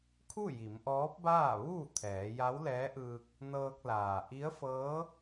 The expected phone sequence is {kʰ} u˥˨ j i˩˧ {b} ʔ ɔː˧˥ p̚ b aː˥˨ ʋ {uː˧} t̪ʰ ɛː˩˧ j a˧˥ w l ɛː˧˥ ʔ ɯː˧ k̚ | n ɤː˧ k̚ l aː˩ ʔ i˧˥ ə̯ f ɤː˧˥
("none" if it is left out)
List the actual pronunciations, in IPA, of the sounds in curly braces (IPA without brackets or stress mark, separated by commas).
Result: kʰ, m, uː˥˨